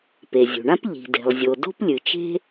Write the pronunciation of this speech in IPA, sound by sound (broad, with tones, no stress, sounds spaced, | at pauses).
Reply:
p e˩ zʲ ṳ˩ ɳ ã˥ p ʎ i̤˩ d e̤˩ lˠ zʲ o˩ d o̤˥ p lʲ ɨ˩ t͡ʃ e̤˥